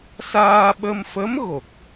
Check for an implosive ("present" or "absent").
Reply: present